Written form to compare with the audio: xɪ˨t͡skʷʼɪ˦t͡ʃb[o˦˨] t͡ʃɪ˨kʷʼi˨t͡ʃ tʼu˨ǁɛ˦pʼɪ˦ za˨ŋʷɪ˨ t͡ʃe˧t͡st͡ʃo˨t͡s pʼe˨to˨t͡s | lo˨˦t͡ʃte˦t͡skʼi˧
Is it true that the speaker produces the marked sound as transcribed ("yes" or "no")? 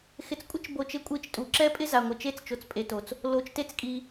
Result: no